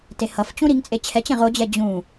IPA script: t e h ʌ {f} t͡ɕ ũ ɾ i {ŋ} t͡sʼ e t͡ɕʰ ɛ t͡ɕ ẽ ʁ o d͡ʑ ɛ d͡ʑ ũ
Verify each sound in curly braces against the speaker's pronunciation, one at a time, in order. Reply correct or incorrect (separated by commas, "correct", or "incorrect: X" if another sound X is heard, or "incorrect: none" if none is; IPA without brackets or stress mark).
correct, correct